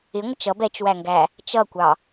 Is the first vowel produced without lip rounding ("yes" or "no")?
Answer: yes